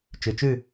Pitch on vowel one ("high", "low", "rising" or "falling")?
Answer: low